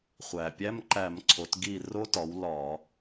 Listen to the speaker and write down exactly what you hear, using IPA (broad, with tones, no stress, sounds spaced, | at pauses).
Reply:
χʷ æ˩ pʲ æ˧˥˧ m ǃ æ˧˩˧ m ǀʰ o˩˧ t ɡ i˧˩ r o˧˥ t ɒ˩˧ w l ɒ˧˩˧